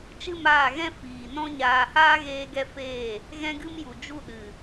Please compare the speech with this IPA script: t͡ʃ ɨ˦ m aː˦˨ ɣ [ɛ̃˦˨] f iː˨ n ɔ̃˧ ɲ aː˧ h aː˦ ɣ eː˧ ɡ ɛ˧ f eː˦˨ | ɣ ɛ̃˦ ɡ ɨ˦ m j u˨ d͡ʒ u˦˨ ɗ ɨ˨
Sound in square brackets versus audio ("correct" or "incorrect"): incorrect